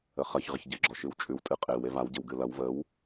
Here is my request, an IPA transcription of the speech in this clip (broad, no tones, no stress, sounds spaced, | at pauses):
ə χ ɐ ç ʁ ɪ ç ɟ ɪ ɡ͡ǁ ɔ ʃ ɨ w t͡ʃʼ ʉ w tʼ ɨ qʼ e w e v a w ɟ ɪ w ɡ ɨ l ɐ w v ə w